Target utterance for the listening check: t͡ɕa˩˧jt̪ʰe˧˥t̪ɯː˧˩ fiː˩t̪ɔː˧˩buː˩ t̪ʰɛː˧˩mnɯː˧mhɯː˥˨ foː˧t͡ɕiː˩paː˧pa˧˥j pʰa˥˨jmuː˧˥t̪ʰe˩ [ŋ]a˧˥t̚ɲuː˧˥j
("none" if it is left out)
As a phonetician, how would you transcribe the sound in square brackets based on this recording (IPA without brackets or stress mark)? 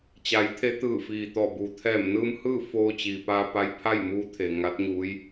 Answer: ŋ